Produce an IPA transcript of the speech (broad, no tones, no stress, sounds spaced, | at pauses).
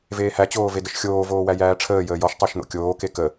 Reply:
v eː h æ t͡ɕ oː v e d ə ʃ xʲ oː v oː w æ j æː ʈ͡ʂʰ əː j əː j ɔ ʃ tˤ æ ʃ n̪ o̰ kʲ oː k e k ə